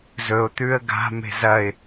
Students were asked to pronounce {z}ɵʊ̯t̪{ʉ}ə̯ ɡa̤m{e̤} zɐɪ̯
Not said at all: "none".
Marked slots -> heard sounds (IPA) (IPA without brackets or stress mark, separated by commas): z, ʉ, e̤